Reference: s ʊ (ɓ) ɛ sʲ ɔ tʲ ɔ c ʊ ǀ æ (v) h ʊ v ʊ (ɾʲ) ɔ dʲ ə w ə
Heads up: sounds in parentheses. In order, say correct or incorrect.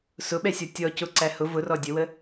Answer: correct, incorrect, incorrect

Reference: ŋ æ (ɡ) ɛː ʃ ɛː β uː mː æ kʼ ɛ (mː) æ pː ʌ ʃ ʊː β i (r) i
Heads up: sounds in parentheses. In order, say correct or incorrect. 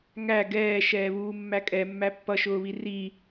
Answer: correct, correct, correct

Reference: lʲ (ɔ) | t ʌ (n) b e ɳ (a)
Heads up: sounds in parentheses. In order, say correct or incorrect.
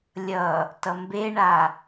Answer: incorrect, incorrect, correct

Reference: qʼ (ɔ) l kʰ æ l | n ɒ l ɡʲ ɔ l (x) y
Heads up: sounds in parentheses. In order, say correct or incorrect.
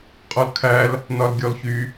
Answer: correct, incorrect

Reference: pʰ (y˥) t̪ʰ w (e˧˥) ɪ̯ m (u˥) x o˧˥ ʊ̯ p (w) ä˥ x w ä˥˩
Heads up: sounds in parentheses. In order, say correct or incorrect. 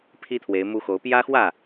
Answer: incorrect, correct, correct, incorrect

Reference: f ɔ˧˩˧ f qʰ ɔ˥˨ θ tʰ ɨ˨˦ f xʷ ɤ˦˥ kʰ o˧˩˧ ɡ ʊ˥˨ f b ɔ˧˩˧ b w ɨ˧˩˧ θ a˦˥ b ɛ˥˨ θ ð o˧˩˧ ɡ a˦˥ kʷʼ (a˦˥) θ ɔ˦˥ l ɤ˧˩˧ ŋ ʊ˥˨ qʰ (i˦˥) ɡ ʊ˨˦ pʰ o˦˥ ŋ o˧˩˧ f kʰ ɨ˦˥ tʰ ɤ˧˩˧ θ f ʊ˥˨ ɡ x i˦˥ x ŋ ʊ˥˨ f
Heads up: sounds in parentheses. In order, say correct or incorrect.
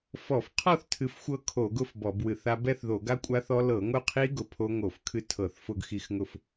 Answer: correct, correct

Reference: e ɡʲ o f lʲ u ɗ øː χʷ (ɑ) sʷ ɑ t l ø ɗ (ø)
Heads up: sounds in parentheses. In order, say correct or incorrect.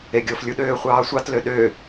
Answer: incorrect, correct

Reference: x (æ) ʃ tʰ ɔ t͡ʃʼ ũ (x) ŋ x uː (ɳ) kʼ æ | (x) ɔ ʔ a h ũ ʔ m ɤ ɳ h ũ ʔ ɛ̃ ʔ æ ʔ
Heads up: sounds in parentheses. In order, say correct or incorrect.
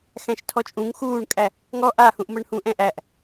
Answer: incorrect, incorrect, correct, incorrect

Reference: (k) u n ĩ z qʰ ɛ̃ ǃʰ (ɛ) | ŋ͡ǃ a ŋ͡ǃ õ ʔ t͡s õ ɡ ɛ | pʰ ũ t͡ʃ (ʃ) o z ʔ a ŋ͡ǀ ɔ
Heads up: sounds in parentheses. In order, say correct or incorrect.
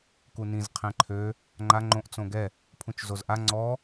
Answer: correct, incorrect, incorrect

